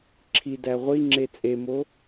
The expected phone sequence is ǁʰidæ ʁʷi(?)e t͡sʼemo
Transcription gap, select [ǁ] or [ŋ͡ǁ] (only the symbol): ŋ͡ǁ